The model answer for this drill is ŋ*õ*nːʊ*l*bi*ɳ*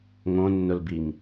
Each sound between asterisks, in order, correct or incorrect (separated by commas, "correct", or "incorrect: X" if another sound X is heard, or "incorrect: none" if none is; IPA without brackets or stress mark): correct, correct, incorrect: ŋ